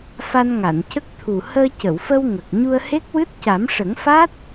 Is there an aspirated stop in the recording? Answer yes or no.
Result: yes